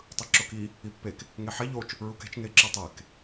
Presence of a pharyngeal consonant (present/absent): present